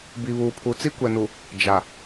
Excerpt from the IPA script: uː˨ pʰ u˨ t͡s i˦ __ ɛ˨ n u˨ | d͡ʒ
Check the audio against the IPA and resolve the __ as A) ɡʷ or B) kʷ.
B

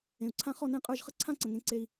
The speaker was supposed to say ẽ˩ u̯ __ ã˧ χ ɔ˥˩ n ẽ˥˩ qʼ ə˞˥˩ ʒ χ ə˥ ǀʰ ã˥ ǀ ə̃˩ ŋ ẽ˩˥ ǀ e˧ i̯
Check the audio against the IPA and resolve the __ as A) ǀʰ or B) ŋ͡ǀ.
A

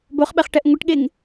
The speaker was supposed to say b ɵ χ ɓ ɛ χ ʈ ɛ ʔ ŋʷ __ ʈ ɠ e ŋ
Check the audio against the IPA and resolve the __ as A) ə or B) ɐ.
A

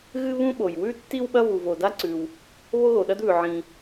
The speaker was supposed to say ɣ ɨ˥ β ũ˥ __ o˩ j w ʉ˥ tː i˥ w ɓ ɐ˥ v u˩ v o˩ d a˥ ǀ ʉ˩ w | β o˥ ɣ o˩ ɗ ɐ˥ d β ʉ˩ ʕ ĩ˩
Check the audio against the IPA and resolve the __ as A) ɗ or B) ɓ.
B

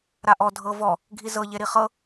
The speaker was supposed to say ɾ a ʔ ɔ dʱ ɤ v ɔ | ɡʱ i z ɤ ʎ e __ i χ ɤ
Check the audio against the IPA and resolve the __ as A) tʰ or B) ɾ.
B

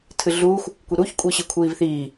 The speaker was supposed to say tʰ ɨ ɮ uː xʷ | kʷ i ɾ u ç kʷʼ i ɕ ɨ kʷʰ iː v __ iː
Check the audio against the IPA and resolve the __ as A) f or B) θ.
B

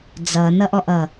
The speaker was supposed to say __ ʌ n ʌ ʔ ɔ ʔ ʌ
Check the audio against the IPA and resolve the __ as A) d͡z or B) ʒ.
A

